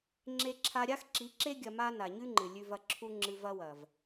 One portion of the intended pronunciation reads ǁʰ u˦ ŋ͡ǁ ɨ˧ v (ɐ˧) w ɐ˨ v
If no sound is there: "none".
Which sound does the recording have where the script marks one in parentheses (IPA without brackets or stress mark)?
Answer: ɐ˦